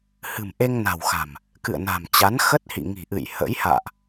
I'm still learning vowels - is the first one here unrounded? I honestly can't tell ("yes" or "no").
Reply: yes